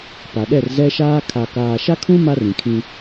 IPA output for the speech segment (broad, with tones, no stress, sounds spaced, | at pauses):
p a˨ ɗ ɛ˦˨ r z ɛ˦ ʃ aː˦ kʰ a˨ k aː˨ ʃ a˦ kʰ ũ˦ m a˦ r ĩ˨ kʰ ĩ˦